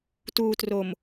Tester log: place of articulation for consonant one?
alveolar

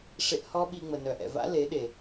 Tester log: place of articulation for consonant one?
retroflex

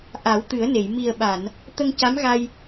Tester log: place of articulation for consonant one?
glottal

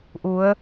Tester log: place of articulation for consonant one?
glottal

